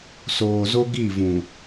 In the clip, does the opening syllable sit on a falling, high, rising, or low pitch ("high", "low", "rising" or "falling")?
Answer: low